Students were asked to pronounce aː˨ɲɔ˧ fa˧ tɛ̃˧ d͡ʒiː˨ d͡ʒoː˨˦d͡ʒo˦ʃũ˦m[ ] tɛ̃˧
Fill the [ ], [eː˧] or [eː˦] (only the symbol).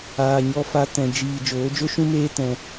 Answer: eː˦